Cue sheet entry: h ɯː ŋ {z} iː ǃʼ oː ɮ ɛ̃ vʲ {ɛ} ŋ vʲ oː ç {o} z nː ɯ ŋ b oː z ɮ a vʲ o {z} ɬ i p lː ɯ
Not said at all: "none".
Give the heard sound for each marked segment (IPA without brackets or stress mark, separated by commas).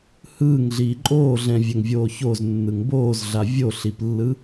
ɮ, ɛ, o, none